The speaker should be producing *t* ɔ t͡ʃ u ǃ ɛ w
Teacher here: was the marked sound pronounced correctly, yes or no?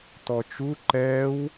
yes